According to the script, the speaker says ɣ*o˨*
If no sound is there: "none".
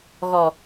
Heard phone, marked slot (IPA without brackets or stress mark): ɔ˨